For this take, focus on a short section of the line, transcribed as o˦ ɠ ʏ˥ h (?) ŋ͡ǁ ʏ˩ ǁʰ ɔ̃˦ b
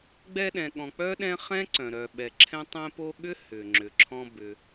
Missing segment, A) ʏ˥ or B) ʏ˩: B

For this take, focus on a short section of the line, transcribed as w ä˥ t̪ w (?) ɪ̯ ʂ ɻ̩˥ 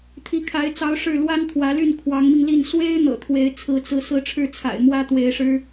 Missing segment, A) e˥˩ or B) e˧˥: B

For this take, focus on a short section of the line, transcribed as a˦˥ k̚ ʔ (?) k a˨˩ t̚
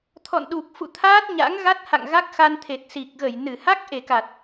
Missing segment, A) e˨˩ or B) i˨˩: A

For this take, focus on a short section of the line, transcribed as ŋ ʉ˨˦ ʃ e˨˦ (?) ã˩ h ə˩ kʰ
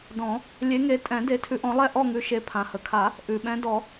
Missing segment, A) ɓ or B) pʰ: B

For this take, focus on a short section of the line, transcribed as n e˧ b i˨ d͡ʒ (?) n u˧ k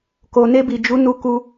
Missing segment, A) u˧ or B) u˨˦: B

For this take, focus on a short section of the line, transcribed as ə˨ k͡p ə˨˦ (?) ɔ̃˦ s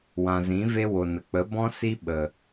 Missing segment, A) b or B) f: A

